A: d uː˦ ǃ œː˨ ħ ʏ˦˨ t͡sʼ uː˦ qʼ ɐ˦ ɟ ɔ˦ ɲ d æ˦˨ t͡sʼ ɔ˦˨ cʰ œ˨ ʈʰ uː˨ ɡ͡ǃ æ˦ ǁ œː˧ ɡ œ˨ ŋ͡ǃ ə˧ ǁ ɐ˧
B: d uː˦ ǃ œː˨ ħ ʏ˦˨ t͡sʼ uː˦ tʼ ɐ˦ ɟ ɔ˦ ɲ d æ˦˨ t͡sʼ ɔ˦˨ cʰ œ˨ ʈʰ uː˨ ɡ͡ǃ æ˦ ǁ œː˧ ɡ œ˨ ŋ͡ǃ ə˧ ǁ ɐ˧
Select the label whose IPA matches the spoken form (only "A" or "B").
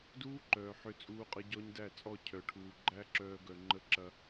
A